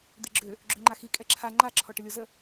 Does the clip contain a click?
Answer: yes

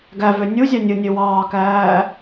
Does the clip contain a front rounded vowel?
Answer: yes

